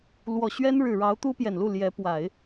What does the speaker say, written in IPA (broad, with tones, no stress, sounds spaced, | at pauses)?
l w ɔ˨˩ ɕ ɥ ɛ˥ n ɻ ɻ̩˨˩ ɻ ɑ˧˥ ʊ̯ t̪ u˥ p j ɛ˨˩ n l u˥˩ l j ɛ˧˥ p w a˨˩˦ ɪ̯